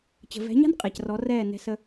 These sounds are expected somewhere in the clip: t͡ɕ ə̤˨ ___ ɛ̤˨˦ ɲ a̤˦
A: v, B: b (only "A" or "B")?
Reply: A